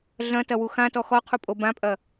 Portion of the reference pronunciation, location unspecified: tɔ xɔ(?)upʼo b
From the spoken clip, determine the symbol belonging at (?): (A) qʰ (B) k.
A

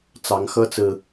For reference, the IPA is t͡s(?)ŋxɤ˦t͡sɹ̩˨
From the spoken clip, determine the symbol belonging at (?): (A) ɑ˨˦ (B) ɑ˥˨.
A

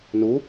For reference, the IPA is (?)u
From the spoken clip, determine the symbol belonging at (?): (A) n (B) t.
A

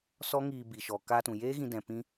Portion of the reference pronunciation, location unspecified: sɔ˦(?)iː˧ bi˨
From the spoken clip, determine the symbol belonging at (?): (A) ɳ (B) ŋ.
B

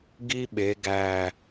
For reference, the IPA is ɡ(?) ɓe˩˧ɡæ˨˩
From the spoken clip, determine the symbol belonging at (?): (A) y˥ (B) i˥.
B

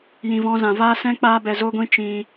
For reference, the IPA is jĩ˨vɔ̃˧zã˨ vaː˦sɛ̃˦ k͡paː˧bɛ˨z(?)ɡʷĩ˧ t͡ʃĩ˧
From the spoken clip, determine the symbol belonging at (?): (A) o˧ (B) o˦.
A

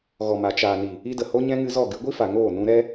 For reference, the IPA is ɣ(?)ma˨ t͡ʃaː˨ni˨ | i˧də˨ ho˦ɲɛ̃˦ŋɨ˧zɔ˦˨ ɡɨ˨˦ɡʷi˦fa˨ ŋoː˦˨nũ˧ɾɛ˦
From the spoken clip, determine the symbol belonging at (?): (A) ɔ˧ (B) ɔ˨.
B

